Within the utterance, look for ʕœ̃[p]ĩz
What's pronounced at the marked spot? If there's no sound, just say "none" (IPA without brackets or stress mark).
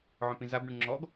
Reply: p